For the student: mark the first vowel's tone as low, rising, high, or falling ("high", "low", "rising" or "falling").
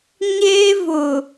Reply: high